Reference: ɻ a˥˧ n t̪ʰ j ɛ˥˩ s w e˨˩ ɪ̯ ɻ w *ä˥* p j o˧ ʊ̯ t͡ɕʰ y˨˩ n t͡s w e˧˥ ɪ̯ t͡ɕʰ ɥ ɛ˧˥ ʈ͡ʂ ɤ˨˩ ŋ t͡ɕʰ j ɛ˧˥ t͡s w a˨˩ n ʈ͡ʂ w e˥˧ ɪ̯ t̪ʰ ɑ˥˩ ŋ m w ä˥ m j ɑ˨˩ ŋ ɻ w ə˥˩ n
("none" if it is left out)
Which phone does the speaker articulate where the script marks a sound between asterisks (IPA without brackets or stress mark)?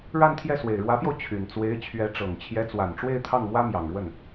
ä˧˥